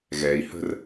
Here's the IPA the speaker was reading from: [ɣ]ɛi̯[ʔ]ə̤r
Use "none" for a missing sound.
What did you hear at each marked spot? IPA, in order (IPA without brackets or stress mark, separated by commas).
ɣ, h